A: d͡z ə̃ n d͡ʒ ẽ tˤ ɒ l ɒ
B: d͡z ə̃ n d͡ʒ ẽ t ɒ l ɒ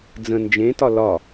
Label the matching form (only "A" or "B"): B